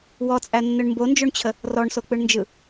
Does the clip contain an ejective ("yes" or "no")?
yes